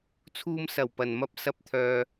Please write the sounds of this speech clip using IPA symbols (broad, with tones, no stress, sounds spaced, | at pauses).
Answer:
t͡sʰ uː˧ m s ɐ˨˩ w p ɐ˨˩ n m ɐ˥ p̚ s ɐ˧ p̚ t̪ʰ œː˨